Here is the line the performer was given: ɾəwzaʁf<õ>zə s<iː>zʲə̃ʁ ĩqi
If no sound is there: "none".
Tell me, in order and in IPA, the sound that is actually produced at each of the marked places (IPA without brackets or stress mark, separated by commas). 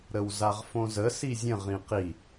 õ, i